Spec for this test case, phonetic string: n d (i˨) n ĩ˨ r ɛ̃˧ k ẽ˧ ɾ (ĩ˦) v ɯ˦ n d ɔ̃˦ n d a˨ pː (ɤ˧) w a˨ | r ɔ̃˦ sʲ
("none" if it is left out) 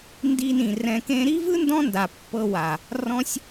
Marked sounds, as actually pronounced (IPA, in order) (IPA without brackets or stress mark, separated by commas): i˧, i˦, ɤ˧